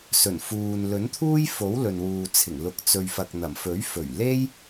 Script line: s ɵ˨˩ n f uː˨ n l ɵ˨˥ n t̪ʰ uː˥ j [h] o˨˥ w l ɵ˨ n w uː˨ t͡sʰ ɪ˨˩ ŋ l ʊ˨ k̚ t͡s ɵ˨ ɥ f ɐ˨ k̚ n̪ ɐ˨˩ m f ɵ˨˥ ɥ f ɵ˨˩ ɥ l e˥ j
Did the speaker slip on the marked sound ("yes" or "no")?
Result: yes